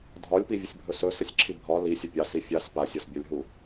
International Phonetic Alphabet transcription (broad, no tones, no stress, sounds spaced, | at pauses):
dʱ ɒ lʲ p i vʲ ə sʲ bʱ ɵ s ɵ s ə sʲ ǁʰ i bʱ ɒ l i sʲ ə pʲ ɑ s i fʲ a s p a sʲ ɒ s bʲ ɒ lʲ ɦ u